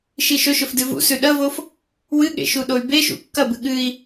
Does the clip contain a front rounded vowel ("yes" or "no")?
yes